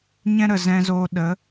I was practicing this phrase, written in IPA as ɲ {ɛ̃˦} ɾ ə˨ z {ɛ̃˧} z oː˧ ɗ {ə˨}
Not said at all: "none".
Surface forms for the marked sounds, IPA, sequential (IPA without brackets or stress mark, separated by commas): ɛ̃˦, ɛ̃˧, ə˨˦